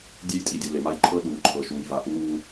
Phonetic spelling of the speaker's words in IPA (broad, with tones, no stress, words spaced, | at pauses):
dʲe˦jtʼi˨dʲɘ˨ le˨ma˦jǃʰɤ˦ ɗuː˨ǃʰɤ˨ ʃuː˨jva˨ ʔuː˦